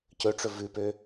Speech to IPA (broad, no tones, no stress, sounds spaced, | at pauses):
c ɵ ʈ͡ʂ ɵ v ʉ p ø